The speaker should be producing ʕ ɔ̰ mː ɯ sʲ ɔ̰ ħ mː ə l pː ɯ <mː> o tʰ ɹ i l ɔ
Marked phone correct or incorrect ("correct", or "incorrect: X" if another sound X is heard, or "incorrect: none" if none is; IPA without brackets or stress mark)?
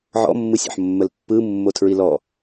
correct